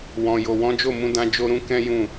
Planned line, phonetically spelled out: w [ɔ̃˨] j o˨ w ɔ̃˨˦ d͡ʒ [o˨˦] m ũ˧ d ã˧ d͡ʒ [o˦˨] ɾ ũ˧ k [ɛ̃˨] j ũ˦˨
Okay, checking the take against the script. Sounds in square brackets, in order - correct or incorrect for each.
correct, incorrect: o˦˨, incorrect: o˧, incorrect: ɛ̃˦

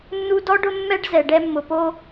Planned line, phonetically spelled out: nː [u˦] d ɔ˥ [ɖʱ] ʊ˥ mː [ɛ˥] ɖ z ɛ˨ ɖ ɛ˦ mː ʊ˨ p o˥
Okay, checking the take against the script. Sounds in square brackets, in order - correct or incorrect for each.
correct, incorrect: ɖ, correct

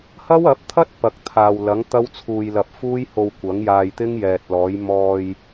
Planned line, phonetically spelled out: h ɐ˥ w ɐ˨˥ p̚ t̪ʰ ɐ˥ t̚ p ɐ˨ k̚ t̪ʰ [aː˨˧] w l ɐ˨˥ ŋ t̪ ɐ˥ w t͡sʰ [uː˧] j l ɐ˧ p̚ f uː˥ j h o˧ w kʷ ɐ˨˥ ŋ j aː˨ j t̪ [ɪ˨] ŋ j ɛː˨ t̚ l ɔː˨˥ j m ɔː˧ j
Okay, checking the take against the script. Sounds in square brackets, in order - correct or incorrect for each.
incorrect: aː˨, correct, incorrect: ɪ˥

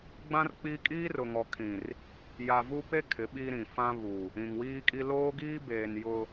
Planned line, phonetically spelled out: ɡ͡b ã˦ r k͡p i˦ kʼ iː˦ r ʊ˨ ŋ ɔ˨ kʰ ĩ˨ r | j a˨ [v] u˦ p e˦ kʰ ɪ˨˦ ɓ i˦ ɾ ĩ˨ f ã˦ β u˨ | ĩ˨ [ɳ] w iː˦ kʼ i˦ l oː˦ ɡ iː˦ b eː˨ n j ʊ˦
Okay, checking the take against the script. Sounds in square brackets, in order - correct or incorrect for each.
correct, incorrect: ŋ

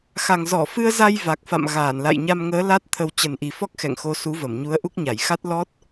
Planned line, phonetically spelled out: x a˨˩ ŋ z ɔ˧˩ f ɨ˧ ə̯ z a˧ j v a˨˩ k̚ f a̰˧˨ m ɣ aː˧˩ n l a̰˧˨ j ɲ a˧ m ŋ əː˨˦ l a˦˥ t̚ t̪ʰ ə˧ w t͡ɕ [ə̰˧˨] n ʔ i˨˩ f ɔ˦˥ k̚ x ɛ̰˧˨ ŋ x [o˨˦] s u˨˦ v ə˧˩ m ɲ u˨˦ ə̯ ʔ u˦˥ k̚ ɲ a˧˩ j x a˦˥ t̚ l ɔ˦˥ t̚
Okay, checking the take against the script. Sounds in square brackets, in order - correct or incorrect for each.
incorrect: ə˨˩, correct

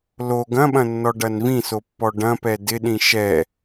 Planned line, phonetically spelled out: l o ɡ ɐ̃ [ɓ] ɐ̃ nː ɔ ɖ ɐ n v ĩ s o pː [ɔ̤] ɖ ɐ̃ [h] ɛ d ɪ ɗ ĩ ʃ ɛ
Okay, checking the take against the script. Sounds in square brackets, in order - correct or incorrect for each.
correct, incorrect: ɔ, incorrect: p

